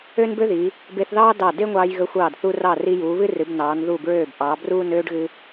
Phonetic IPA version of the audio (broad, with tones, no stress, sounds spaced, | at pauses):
ø˥ n b ø˥ ð iː˩˧ | b e˧ θ ð ɑː˥ d ɑ˧˩ d e˥ ŋʷ ɑː˧ j ɣ ə˧ xʷ ɑː˧˩ d θ u˧ r ɑ˧˩ r i˧ j uː˩˧ β ɨ˥ r ɨ˩˧ b n ɑː˩˧ n ð u˧˩ b ɹ øː˧˩ b ʔ ɑ˩˧ b r uː˥˧ n øː˥ ɖ ɣ ɨ˧